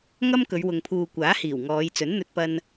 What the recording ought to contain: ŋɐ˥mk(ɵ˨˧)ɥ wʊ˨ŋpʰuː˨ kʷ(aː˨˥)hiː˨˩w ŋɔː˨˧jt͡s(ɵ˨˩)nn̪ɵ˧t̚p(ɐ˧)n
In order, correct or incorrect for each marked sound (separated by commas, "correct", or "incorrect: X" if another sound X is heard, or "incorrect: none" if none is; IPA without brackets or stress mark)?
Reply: correct, correct, incorrect: ɵ˨˥, correct